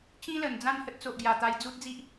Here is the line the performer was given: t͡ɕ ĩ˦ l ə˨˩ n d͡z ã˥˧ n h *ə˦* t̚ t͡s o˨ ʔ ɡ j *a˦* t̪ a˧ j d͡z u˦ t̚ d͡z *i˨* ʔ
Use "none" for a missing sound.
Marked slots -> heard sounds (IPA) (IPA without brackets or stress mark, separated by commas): ə˦, a˨˩, i˦